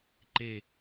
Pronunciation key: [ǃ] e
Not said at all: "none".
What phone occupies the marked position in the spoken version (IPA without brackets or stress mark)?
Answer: ǃ